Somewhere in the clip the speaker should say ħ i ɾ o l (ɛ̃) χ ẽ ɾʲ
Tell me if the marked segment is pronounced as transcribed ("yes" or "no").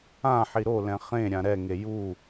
yes